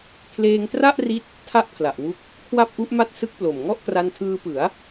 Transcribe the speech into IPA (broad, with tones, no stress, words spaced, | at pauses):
kʰleː˧ŋtra˥˩ʔri˦˥t̚ | tʰa˥˩ʔpʰla˨˩ʔwu˦˥k̚ | kʰwa˥˩p̚ʔu˦˥ʔma˥˩t̚ sɯ˦˥k̚plo˨˩mŋɔ˥˩ʔ kra˧ntʰɯː˧pɯ˩˦a̯